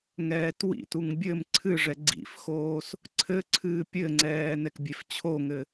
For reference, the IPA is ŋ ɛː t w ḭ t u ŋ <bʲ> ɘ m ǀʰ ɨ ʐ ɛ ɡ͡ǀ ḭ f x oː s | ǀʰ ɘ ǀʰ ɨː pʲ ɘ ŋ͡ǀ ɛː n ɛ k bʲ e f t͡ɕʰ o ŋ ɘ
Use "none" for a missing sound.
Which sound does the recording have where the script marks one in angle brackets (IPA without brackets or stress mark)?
bʲ